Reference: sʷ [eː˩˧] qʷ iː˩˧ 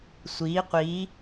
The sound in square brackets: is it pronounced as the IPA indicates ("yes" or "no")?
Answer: no